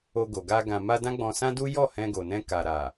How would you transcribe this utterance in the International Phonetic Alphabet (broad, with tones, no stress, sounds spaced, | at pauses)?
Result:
o˧ ɡ o˨ ɡ a˧ ɡ ã˨ m a˧ d ã˦ ɡ͡b ɔ̃˧ s ã˦ d u˦ j ɔ˦˨ h ɛ̃˧ ɡ o˨ n ɛ̃˧ k a˨ ɾ a˨